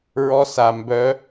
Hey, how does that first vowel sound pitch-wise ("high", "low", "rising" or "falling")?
rising